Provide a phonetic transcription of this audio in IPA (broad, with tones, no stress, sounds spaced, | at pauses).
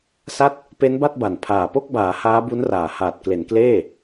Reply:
s a˥˩ t̚ | p e˦˥ n b a˥˩ t̚ b a˨˩ n pʰ aː˨˩ p o˥˩ k̚ b aː˩˦ h aː˦˥ b u˦˥ n r aː˨˩ h aː˨˩ t̚ k l e˩˦ n k l eː˥˩